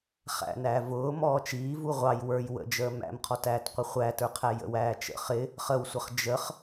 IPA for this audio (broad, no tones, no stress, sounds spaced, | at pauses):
χ æ̰ n æː v ʊː m ɔː t͡ʃ iː v u ʁʷ ɑ j w ə˞ j w ə̰ d͡ʒ əː m æ̰ m qʰ ɔ t æː t qʷ ɪ χʷ æ t ə˞ qʰ æ j ə̰ w æː t͡ʃ ə̰ χ ɪ | χ ə w sʷ ə χ d͡ʒ ə χ